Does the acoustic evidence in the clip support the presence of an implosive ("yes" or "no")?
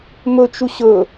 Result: no